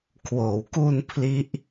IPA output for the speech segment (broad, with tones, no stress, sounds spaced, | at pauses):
kʰ w oː˩˦ w k u˧ n pʰ l i˦˥ ʔ